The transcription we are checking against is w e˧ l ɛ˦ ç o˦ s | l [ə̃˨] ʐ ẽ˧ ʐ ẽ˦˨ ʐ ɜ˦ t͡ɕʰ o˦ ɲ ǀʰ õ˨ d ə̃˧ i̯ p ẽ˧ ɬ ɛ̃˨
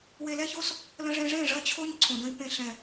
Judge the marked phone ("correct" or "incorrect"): incorrect